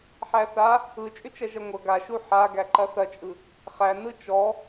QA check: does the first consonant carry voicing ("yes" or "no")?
no